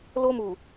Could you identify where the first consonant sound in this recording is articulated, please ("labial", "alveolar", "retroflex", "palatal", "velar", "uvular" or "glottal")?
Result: alveolar